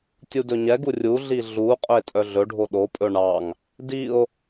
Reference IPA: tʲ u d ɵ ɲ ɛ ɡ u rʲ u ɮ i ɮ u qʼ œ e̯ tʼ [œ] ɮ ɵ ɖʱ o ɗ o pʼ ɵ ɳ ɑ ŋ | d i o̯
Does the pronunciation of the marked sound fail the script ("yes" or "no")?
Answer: no